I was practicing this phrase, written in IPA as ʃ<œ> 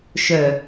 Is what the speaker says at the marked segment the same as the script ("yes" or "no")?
yes